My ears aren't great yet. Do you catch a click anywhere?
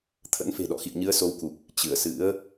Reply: no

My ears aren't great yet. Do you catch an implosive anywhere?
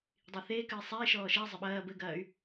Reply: yes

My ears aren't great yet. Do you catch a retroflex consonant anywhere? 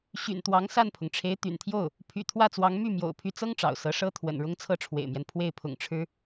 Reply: yes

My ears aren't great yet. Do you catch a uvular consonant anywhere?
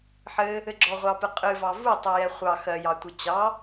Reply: yes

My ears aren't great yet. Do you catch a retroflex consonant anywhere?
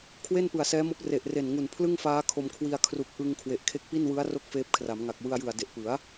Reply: no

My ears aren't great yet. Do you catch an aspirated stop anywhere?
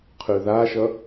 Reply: yes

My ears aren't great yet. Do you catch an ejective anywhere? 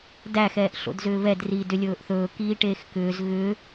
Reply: no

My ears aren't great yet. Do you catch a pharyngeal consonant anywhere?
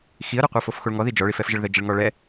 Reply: no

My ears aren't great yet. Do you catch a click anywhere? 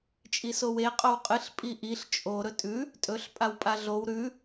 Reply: no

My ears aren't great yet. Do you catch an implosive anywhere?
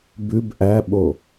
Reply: yes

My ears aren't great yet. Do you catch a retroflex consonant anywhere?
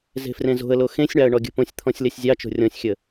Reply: yes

